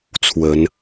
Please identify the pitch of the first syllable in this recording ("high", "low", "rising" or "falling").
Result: rising